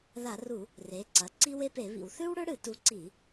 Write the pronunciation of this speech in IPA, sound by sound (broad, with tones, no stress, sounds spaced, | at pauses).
ð a˧˩˧ r u˧˩˧ | r e˩˥ ǀ ɐ˩˧˩ ǀ i˦ w e˦ p e˧˩˧ β ḭ˧˩˧ w θ ʉ˦ w ɽ ɵ˦ ɽ ɨ˧˩˧ t u˩˥ ǀ i˧˩˧